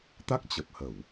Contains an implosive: no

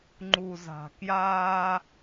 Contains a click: yes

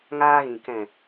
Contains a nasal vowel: yes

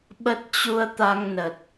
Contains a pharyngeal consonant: no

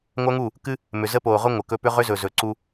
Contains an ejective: no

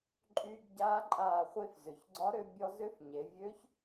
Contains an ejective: yes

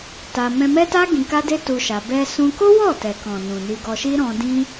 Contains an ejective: no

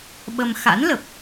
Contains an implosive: yes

